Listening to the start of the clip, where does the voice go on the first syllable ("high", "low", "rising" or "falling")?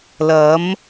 rising